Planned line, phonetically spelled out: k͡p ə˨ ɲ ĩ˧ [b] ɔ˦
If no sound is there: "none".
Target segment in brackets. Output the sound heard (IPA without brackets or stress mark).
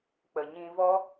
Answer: v